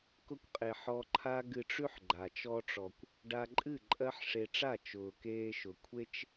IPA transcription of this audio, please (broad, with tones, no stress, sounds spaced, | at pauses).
k ʊ˧ kʷ qʼ e˨ ħ ɔ˧ ǃʰ a˦ ɡ ɨ˧ ʈ͡ʂ ʉ˦ ħ ɡ͡ǃ a˨ t͡ʃ ɔ˧ ʈ͡ʂ ɔ˨ kʷ | ɖ a˧ ǃʼ ɨ˦˨ ǃʼ ɜ˦ ħ ʂ e˧ ʈ͡ʂ a˦˨ t͡ʃ ʊː˨ k eː˧ ʃ ʊ˨ kʷʰ e˧ t͡ʃ